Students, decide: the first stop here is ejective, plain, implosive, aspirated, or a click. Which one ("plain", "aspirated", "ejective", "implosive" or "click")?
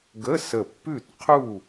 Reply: plain